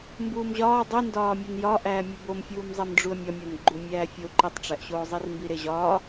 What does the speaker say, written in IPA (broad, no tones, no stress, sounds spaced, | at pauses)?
m b uː m ʑ ɒː dˤ i n d ɒː mʲ e n j ɒ ʔ æː mʲ o b o m fʲ uː m zˤ e m ɖ͡ʐ u ə̯ mʲ ɒ mʲ ɒ n ɡ͡ǃ u mʲ æː fʲ o ǃ i tˤ ʈ͡ʂ æ ʔ ɕ oː zˤ i r m b i ɾ e ʑ ɒː